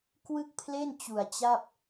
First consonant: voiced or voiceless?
voiceless